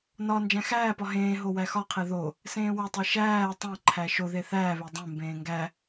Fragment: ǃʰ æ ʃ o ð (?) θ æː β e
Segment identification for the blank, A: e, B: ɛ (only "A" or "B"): A